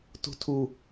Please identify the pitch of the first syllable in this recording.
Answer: high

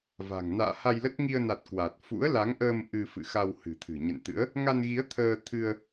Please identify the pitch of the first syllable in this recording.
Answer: low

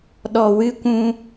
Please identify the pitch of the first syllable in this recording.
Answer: low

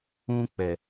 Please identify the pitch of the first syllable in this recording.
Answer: high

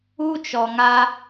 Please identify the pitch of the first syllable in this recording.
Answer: high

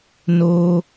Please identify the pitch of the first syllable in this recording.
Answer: high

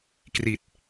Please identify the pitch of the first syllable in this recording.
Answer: low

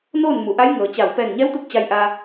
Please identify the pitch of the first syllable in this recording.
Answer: falling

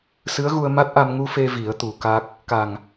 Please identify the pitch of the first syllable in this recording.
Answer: rising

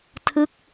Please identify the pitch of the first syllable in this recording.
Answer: falling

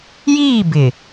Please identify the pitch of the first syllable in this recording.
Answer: falling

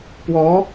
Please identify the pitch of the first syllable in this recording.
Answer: rising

